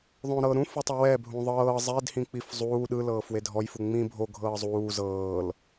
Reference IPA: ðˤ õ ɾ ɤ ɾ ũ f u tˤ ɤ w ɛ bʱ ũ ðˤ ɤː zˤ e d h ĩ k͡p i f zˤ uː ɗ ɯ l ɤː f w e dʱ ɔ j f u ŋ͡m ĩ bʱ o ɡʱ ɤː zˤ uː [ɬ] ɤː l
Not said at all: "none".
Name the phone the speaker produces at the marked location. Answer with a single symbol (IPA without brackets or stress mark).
z